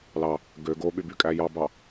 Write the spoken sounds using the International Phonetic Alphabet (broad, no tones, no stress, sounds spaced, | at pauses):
l ɑ | ɡ ø ɡ o ɓ y b y kʼ æ j ɑ b ɑ